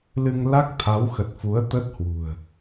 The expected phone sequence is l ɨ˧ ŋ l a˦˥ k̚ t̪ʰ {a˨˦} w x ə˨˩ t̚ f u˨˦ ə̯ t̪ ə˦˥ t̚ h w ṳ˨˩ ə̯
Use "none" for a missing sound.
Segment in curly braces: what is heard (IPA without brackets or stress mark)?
a˨˦